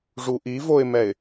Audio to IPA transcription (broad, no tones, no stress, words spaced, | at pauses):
ʐuʔivoɪ̯mɛɪ̯